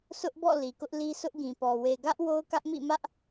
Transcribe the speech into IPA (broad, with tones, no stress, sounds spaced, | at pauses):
sʰ ʊ˦ ʔ b ɔ̰˦˨ l i˨ k ʊ˦ ʔ l i˦ sʰ ʊ˦ ʔ ɡ ĩ˨ p ɔ˨ w e˨ ɡ ä˦ ʔ w o˦ ʊ̯ k ä˦ ʔ m ḭ˦˨ m ä˦ ʔ